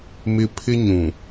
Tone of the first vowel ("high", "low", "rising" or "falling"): high